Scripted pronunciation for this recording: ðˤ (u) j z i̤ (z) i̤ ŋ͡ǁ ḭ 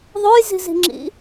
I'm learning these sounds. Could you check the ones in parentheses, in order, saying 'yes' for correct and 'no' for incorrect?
no, yes

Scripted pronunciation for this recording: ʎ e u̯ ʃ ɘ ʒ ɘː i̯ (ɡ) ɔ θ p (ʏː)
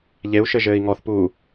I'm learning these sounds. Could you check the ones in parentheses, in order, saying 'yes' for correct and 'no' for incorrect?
no, no

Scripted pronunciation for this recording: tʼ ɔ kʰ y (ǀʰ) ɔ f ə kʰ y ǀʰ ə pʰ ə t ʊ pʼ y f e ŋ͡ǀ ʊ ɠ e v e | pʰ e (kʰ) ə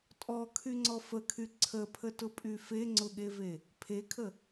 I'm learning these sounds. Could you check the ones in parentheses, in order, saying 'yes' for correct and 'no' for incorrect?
no, yes

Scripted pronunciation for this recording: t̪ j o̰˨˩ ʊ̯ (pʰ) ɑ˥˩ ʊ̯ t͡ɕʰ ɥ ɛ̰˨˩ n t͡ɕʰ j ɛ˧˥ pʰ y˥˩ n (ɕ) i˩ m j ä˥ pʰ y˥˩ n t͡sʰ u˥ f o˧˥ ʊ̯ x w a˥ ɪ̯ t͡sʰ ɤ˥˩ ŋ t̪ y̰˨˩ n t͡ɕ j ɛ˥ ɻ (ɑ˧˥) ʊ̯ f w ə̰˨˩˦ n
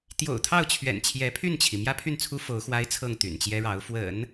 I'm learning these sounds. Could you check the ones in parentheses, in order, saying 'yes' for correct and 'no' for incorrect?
no, no, yes

